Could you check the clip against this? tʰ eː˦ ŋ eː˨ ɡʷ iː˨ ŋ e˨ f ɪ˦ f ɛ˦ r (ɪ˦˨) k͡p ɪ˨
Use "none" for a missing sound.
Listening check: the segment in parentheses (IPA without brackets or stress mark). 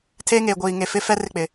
ɪ˦˨